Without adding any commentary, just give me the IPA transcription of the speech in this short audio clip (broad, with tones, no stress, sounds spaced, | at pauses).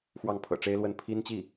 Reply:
x w ɑ˥˩ ŋ pʰ ɤ̰˨˩ ʈ͡ʂ e˥ ɪ̯ l w ə˥˩ n pʰ i˥ n t͡ɕ i˥˩